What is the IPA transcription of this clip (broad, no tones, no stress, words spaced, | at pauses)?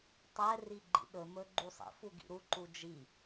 tˤɛ riɡ͡ǃḭɗɵmɵ ɡ͡ǃusˤḭ fuɡḭɾu ǃud͡ʒi